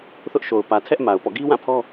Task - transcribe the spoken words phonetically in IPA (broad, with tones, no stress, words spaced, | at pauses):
θʊ˦ʔʃo˨ʊ̯ pä˨tʰɛ˦ʔ ma˨ʊ̯pɔ̰˦˨ ɡi˦wã˦˨pʰɔ˦